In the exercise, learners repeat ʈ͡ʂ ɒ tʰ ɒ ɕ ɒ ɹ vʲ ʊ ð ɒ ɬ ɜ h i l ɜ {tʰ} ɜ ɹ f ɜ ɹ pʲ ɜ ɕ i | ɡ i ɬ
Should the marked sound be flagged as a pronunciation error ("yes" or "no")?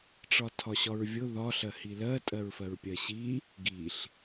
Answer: yes